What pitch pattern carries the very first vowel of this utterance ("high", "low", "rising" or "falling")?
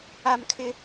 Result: high